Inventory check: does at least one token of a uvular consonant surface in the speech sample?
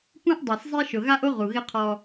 yes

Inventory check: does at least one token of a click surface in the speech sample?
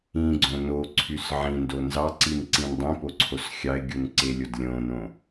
yes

